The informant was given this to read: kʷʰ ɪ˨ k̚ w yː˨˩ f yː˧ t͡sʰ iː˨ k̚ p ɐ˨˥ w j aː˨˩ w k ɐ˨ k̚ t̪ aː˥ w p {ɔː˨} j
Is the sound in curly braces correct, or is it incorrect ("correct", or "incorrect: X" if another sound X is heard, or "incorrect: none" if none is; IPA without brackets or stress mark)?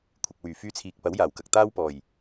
incorrect: ɔː˨˩